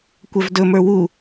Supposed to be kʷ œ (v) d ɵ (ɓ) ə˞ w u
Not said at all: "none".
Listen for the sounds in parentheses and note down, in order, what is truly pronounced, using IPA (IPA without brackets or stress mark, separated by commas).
v, m